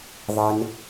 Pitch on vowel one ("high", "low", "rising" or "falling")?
low